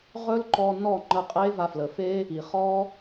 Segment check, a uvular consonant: present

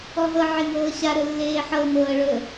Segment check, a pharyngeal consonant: present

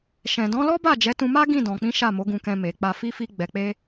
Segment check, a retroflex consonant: absent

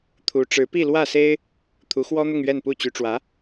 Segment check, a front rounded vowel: present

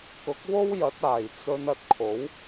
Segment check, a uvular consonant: absent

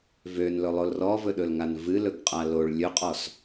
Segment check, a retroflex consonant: present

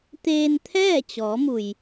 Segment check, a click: absent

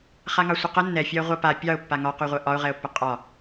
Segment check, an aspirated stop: absent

